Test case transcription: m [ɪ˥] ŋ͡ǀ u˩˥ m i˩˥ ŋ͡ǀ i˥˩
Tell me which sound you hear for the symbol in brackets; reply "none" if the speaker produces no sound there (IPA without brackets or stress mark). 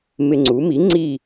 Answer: ɪ˧